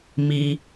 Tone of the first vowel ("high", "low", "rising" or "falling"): high